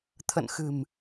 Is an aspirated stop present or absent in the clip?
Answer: present